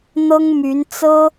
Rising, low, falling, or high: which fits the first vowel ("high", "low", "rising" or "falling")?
high